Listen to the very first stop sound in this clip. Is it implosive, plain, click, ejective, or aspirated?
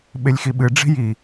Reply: implosive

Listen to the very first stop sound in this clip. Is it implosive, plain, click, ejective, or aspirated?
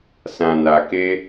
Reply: plain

